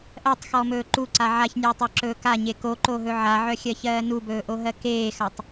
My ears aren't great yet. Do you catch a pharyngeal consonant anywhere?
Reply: yes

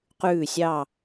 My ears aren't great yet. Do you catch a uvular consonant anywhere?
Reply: yes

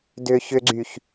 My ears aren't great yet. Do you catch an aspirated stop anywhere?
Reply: no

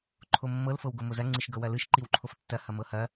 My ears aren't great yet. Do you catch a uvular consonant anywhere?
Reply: no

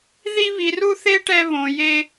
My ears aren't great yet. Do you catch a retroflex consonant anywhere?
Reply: yes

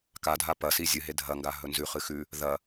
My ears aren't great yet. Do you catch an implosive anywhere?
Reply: no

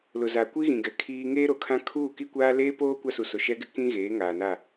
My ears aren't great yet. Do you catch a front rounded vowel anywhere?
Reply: no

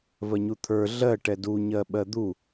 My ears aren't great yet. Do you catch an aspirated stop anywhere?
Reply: yes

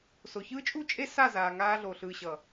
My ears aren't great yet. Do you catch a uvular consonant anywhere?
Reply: no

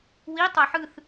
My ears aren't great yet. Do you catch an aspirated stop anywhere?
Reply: no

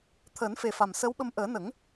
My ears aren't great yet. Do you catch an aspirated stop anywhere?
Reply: yes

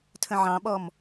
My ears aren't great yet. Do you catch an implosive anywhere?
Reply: yes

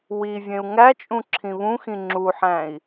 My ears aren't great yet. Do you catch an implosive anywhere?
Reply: no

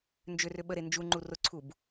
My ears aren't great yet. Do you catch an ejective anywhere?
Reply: no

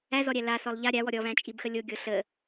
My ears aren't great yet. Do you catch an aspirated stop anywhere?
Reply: no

